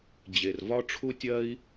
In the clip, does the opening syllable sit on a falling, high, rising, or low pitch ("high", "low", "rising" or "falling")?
low